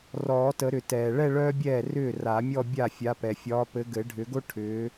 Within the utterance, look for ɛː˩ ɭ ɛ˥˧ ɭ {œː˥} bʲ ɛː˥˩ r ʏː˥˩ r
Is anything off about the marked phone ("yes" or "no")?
no